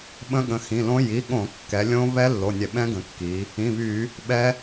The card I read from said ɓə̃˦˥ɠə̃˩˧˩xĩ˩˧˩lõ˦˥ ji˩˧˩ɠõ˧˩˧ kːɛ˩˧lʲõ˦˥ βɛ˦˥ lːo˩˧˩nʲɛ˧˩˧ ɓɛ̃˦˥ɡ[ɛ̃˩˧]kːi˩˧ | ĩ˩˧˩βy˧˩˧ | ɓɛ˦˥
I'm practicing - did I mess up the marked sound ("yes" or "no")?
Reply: yes